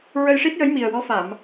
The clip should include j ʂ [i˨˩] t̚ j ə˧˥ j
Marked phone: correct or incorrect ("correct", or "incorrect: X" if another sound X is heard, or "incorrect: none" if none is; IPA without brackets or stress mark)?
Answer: incorrect: i˦˥